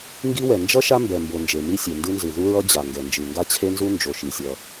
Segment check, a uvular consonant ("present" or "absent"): absent